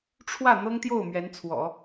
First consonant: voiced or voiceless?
voiceless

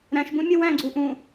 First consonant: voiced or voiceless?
voiced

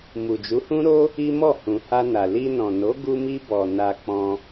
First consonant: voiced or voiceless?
voiced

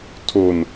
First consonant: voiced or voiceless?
voiceless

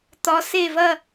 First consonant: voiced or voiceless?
voiceless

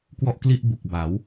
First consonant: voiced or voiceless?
voiceless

